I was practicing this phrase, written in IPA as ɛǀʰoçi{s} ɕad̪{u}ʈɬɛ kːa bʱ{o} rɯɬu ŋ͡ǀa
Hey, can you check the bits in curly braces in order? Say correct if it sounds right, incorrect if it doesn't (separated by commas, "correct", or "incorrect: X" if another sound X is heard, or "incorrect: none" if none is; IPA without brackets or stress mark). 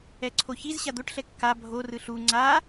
incorrect: z, incorrect: o, correct